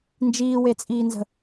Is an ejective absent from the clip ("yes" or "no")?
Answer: no